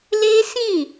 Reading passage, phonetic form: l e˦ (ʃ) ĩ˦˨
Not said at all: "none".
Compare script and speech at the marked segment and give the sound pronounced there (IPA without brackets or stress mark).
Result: s